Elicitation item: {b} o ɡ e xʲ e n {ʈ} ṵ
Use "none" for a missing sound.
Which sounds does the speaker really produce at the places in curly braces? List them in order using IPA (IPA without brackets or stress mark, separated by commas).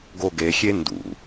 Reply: ɡ, d